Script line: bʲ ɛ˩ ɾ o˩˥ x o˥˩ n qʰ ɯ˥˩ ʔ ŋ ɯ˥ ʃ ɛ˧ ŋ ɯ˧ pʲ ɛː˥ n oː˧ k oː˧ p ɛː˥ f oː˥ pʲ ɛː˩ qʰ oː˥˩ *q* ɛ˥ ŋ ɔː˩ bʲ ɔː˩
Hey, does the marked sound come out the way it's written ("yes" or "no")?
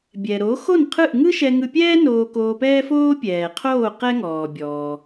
yes